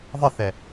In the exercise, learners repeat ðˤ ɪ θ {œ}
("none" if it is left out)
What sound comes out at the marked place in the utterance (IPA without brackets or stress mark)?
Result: ɛ